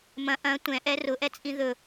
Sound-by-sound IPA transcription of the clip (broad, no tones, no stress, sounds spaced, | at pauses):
m ɐ̃ ʔ ɐ̃ tʷ ɛ̃ ʔ ɛ r ʊ ʔ ɛ t͡sʼ ĩ ð ɵ